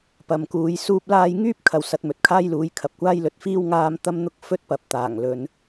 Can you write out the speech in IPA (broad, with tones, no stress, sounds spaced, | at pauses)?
p ɐ˨ m k uː˨˧ j s uː˥ p̚ l aː˥ j ŋ yː˥ p̚ kʰ ɐ˨ w s ɐ˧ t̚ m ɵ˨˥ t̚ kʰ aː˥ j l uː˨˥ j kʰ ɐ˨ p̚ kʷ aː˥ j l ɵ˧ t̚ f iː˥ w ŋ aː˥ m t̪ ɐ˥ m n̪ ʊ˥ k̚ f ɵ˥ t̚ p ɐ˨ p̚ t̪ aː˨˩ ŋ l ɵ˨˧ n